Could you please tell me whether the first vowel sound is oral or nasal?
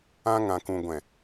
nasal